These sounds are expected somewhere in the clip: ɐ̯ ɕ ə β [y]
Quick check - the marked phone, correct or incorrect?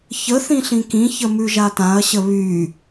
correct